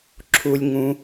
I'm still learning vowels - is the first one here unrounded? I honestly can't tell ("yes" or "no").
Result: no